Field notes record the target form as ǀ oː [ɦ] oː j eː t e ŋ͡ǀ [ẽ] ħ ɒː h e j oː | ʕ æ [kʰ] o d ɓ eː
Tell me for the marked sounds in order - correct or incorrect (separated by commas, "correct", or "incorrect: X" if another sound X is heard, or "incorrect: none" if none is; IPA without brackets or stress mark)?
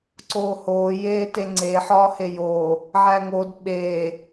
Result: incorrect: h, incorrect: e, incorrect: ŋ